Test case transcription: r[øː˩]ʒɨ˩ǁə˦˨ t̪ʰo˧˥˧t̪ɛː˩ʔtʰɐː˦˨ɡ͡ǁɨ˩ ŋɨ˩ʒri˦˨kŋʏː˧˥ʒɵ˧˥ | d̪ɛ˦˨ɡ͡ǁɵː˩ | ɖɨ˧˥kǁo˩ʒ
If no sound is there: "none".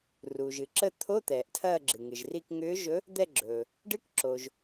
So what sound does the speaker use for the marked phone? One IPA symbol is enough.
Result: uː˩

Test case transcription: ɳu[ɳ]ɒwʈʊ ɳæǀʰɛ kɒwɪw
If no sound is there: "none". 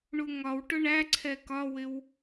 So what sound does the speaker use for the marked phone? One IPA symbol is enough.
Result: ŋ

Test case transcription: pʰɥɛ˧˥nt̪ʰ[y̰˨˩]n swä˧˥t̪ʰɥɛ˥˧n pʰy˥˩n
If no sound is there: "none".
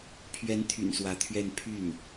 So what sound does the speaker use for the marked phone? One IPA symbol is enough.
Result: y̰˨˩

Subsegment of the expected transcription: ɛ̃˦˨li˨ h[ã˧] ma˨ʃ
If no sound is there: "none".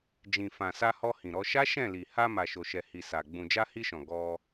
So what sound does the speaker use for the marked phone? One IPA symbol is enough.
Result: a˧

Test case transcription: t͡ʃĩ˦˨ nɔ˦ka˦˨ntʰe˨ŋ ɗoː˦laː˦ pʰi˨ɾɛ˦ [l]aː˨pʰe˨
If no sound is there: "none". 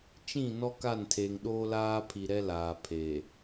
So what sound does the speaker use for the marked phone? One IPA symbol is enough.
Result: l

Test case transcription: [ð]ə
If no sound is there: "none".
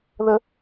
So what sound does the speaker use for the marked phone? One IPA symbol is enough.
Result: ð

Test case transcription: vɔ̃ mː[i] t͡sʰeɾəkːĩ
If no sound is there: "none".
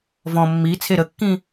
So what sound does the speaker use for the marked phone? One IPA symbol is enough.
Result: i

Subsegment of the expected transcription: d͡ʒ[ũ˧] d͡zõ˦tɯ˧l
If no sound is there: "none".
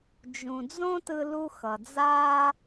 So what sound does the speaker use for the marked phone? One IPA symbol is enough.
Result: ũ˧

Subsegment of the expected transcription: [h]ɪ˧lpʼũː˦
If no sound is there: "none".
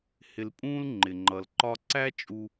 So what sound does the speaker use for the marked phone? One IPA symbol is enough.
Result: h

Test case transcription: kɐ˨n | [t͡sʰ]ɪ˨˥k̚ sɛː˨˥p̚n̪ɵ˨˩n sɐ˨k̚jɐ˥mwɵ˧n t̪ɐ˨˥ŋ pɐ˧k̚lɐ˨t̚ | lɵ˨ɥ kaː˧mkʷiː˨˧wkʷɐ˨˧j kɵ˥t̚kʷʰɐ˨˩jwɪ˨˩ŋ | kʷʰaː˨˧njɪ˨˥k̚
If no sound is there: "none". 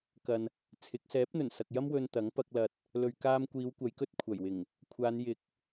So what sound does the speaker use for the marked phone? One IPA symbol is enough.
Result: t͡sʰ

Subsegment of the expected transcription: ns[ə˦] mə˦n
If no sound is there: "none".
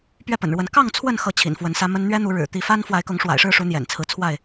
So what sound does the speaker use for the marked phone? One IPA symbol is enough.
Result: ä˦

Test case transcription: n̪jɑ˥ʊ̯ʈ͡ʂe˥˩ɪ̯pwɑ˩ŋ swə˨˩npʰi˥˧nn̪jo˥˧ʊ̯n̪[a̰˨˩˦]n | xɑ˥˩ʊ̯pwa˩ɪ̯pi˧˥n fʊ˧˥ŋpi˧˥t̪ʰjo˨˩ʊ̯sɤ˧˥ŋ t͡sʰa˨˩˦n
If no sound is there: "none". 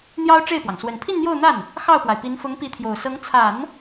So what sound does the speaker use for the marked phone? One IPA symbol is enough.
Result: a˥˩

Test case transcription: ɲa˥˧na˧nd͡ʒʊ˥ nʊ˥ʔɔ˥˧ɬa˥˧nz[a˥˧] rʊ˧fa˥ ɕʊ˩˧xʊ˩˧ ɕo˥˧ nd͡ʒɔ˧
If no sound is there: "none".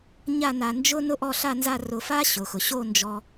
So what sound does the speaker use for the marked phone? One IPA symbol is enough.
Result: a˥˧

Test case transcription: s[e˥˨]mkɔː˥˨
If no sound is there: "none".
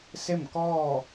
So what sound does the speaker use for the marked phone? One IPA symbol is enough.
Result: e˥˨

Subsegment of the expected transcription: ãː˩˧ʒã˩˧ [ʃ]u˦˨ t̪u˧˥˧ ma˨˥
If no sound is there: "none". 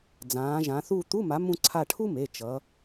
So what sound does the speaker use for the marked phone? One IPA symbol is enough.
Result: θ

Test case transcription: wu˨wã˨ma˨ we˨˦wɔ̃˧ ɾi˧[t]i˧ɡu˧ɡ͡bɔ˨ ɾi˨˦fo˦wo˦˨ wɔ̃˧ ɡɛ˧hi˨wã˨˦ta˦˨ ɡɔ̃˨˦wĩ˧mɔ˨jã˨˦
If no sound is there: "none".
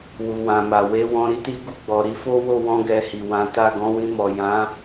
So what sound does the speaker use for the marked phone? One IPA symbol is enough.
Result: t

